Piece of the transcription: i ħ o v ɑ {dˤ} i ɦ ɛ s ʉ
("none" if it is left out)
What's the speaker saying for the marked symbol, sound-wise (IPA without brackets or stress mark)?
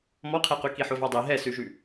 dˤ